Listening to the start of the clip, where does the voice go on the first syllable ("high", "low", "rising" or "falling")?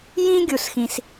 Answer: high